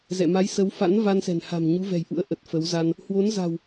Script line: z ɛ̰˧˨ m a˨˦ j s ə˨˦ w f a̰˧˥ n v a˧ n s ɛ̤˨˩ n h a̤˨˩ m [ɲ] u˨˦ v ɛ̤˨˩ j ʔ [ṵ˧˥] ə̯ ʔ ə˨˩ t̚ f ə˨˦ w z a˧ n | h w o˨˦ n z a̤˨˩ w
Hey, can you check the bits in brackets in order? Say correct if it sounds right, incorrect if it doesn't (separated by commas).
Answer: correct, correct